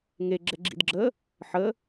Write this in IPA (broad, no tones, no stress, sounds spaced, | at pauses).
ŋ e ɡ͡ǁ ɛ ɡ͡ǁ ḭ d ɡ͡ǁ əː | ħ əː